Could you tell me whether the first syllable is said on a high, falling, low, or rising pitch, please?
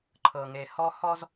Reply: low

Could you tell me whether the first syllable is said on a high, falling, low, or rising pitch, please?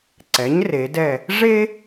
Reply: rising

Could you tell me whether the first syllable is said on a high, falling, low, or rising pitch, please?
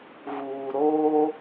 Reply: low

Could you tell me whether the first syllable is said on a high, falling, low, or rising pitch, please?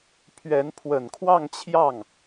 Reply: rising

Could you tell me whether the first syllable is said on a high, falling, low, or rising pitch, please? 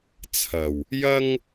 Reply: low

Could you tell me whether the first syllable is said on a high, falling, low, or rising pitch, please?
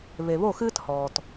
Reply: low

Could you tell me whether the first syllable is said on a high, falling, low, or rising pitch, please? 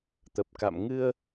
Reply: low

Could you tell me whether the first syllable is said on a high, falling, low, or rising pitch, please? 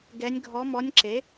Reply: rising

